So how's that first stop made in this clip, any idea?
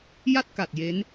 plain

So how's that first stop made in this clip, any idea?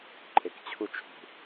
click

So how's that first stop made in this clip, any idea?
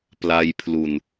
plain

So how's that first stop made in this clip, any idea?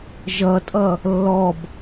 ejective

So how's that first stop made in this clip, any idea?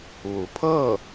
aspirated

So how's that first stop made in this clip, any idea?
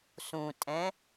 ejective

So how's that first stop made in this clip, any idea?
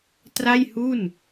plain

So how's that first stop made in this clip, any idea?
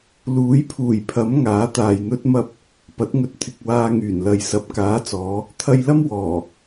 aspirated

